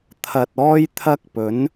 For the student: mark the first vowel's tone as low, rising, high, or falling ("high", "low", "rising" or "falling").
low